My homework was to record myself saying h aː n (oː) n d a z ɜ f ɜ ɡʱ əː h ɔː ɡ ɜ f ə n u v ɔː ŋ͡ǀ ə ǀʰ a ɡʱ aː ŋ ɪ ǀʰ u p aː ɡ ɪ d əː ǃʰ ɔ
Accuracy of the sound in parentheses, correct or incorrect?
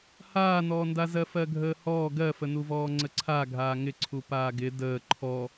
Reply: incorrect